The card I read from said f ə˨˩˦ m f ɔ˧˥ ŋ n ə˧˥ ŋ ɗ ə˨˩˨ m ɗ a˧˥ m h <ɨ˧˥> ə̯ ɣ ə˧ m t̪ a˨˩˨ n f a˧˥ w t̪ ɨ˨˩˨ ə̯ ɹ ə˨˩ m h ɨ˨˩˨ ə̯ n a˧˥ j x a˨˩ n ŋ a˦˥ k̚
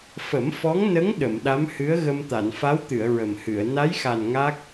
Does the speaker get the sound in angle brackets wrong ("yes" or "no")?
no